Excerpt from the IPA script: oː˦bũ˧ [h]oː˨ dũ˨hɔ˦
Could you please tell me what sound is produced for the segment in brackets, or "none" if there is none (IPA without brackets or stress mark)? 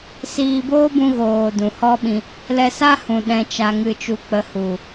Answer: ɣ